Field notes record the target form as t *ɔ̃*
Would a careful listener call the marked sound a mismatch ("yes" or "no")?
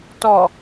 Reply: yes